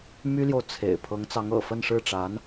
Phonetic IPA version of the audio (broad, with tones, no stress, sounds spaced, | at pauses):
m y˥ l j o˨ ʊ̯ t͡sʰ ḛ˨˩ ɪ̯ pʰ ɤ˧˥ ŋ t͡s ɑ˧˥ ŋ ɤ̰˨˩ f ə˥˧ n ʂ ɻ̩˥˩ ʈ͡ʂ a˧˥ n